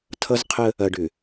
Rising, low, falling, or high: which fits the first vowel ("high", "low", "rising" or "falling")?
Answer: high